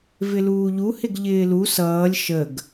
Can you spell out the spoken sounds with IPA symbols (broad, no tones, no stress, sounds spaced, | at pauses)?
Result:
v ɪ l uː ʎ u h ɪ ɡ ʎ ɪː l u s ʌː lʲ ʃ ə ɡ